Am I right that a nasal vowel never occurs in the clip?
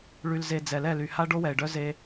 yes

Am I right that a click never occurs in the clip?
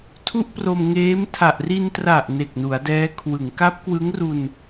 yes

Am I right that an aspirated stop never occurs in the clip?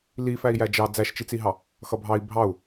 yes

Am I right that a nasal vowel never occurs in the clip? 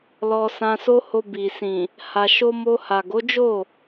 no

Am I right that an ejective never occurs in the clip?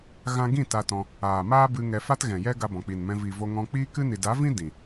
yes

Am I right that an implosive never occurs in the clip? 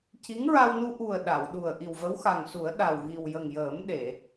no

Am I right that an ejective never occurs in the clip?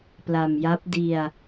yes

